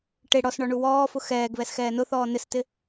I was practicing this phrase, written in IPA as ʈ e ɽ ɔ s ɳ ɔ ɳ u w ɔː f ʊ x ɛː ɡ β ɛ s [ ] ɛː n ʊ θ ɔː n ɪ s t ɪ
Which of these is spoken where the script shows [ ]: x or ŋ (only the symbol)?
x